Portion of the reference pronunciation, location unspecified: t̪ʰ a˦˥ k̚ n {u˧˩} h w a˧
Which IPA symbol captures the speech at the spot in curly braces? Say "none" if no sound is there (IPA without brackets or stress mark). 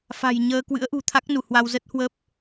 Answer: u˧˩